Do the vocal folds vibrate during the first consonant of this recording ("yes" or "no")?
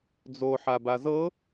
yes